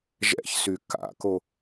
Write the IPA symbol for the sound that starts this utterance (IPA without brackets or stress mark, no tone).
ʒ